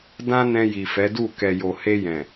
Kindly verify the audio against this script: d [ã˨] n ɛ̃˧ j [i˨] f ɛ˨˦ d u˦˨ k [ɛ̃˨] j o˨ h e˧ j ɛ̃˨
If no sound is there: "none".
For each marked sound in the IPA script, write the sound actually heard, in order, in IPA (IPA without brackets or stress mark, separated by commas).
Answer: ã˦, i˨, ɛ˨